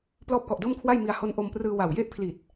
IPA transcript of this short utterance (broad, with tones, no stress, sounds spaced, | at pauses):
p l ɔː˦˥ p̚ k ɔ˨˩ ʔ d o˥˩ m kʰ w a˥˩ j m i˧ a̯ h o˦˥ n ʔ o˧ m p r ɯː˧ w a˨˩ w j e˥˩ ʔ pʰ l i˨˩ t̚